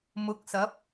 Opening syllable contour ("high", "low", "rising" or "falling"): rising